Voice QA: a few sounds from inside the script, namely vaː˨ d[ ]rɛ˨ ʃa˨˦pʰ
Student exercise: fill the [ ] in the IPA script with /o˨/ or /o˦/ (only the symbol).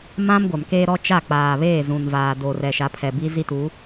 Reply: o˨